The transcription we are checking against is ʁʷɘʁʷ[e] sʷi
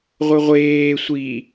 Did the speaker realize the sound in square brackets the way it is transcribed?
no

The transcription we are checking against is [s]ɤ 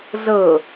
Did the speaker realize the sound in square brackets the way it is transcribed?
no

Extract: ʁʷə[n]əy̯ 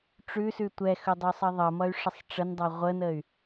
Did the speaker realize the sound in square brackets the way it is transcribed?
yes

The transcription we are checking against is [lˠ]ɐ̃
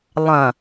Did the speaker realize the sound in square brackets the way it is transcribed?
yes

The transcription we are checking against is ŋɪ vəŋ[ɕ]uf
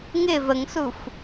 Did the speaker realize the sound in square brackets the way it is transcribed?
no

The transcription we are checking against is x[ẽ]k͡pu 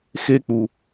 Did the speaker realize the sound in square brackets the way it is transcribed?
no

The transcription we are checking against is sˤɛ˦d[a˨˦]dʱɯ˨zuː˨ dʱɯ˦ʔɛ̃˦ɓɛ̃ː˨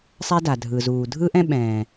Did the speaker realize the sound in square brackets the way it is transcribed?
no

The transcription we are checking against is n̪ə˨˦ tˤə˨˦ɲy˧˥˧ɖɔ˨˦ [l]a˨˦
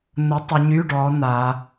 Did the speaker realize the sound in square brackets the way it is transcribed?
no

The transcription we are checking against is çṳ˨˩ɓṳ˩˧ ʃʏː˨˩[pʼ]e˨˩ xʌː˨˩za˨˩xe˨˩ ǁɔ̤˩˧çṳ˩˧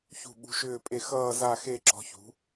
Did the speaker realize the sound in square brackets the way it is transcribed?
yes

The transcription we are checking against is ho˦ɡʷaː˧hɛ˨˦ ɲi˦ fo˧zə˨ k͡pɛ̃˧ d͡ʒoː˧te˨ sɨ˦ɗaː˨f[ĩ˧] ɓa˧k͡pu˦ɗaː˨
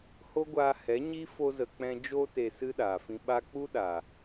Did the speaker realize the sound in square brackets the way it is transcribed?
yes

